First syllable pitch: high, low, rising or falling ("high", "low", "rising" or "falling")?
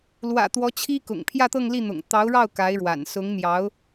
low